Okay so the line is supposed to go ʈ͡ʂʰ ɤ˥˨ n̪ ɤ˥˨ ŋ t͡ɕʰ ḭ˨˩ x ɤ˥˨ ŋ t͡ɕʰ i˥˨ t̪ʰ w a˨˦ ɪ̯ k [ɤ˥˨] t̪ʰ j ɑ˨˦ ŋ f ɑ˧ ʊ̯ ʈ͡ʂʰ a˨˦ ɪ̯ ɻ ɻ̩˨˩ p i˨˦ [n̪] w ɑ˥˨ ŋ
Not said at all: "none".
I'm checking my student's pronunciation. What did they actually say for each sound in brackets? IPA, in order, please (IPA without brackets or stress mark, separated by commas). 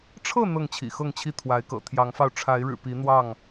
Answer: ɤ̰˨˩, n̪